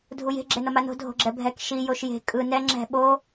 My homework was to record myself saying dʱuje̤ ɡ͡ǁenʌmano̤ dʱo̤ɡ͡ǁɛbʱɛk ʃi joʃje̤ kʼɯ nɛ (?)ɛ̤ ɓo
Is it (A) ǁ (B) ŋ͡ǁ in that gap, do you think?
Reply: B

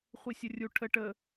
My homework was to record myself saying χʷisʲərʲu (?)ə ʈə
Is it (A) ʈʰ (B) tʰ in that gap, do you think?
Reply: A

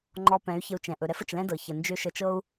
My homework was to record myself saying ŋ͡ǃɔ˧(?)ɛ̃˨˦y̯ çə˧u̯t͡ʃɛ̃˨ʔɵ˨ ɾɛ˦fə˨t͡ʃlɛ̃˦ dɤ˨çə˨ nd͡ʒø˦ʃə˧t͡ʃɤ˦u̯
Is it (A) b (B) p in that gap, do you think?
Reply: B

